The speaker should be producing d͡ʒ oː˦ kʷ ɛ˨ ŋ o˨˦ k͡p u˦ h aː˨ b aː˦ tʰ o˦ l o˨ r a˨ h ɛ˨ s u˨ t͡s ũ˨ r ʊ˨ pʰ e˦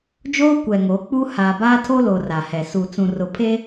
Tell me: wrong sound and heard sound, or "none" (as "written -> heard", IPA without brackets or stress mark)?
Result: none